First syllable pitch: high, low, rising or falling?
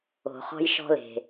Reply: low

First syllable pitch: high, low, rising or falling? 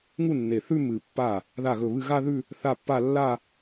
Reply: falling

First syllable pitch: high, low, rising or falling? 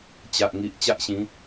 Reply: low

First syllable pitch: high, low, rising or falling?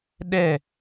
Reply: falling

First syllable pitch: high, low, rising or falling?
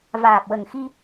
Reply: low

